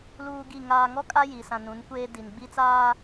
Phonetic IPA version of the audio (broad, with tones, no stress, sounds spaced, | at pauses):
l uː˦ ɡ i˦˨ ŋ aː˨ ŋ ɔ˦ kʼ a˦ j i˨ s ã˨ n ũ˨˦ n kʷ eː˦ d i˨ n ɡ͡b i˦ t͡s aː˦